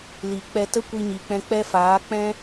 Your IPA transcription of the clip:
li˨k͡pɛ˧ tə˦kʷi˧ɲi˨k͡pɛ̃˧ k͡pɛ˦faː˨˦ k͡pɛ̃˦

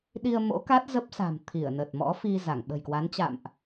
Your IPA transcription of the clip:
ɗi˧ə̯mo̰˧˥ka˦˥t̚ zə˦˥p̚sa̤˨˩m t̪ʰi˧˩ə̯nə˨˩t̚ mɔ̰˧˥ fi˧za˧˩ŋ ɓə̤˨˩jkwa˨˦nt͡ɕa̰˧˨mʔ

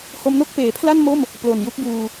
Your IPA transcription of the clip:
ho˧mno˥˩k̚peː˩˦pʰla˥˩n mo˥˩m | plo˨˩nju˦˥k̚buː˧

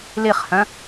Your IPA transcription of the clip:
liχhœ̃

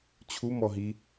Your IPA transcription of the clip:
t͡ɕʰumɔɦi

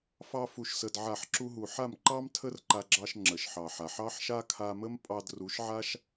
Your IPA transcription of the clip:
fɑ˦fu˧ʃsə˧d ʕa˦˨ħǁu˦ɦu˧ ħa˦˨mǃɑ˦m tʰə˦rǃa˧ɡ͡ǁɑ˧ʃ ŋ͡ǁə˨ʃħɑ˨ħa˨ħ ɑ˦ħʃa˦kʰa˧mə˦m pʼɑ˧dru˨˦ʃʕa˦ʃ

